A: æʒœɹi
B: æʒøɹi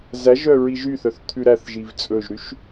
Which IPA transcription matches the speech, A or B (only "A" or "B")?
A